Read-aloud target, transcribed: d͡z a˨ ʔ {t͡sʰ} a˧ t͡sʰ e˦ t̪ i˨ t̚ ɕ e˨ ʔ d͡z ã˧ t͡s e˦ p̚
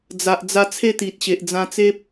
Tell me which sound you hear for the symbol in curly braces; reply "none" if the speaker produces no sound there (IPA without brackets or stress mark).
d͡z